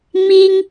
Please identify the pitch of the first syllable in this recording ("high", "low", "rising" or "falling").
high